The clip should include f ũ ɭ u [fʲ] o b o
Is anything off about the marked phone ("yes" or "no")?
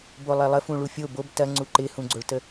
no